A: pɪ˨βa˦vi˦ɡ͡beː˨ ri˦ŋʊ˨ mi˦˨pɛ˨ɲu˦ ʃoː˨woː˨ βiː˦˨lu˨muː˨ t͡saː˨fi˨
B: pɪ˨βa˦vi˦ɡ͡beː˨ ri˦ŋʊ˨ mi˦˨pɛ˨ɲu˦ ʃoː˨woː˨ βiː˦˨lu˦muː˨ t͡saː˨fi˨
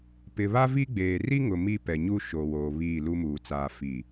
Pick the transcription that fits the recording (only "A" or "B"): B